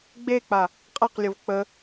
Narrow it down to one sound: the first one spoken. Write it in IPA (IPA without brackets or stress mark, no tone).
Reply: ɡ͡b